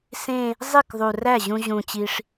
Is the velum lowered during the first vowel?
yes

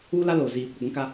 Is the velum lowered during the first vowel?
no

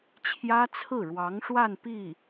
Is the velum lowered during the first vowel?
no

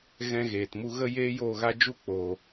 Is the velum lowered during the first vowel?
yes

